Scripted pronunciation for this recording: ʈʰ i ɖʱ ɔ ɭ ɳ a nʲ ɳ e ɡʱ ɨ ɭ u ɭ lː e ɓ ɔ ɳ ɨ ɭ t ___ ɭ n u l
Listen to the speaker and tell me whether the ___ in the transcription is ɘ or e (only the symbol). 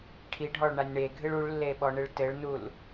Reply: ɘ